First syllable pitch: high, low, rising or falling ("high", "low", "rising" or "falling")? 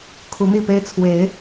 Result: rising